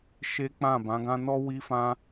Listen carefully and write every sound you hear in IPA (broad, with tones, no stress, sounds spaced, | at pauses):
ʃ e˦ k͡p ã˦˨ b ã˨˦ ɡ ã˦ n ɔ˦ w i˦ f ã˦